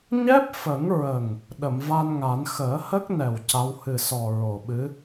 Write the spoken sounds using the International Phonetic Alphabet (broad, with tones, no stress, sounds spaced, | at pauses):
ɲ ɛ˦˥ p̚ f ə˨˩˦ ŋ ɹ ə˨˩ ŋ | ɗ ə˨˩˨ m v a˧ n ŋ a˨˩˦ n x əː˨˩˦ h ə˦˥ k̚ n ɛ˨˩ w c a˧˥ w h ɨ˨˩ s ɔ˨˩ ɹ o˨˩ ɓ ɨ˧˥